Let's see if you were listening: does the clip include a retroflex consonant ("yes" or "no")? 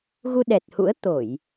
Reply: no